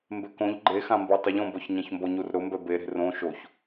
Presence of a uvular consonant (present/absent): absent